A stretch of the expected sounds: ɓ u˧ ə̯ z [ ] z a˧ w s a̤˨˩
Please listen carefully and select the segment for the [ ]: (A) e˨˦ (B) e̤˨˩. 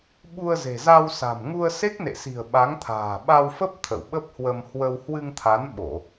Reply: B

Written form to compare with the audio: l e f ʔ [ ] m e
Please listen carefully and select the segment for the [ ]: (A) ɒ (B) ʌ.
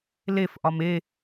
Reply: A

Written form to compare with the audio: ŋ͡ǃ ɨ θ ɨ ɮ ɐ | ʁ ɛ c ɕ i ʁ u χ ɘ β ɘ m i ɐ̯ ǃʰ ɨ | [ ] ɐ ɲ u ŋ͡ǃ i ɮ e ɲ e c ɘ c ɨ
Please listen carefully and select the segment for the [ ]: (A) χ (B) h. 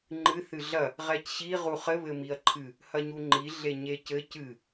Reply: B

